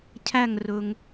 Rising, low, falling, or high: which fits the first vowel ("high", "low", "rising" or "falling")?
falling